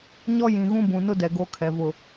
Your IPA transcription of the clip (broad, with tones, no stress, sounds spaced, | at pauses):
ɲ ɔ˦ j ĩ˨ ɣ ũ˦ b ũ˨ n ʊ˦ d ɛ˨ ɡ o˦ kʰ ɛ˨ v ʊ˦˨